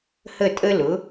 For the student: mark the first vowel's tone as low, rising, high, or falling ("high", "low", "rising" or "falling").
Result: falling